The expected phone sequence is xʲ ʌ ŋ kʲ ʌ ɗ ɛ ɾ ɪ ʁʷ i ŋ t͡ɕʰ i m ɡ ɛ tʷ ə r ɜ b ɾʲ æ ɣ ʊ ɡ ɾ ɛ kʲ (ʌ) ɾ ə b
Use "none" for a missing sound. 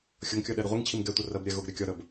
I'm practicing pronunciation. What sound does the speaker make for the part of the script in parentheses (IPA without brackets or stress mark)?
ɒ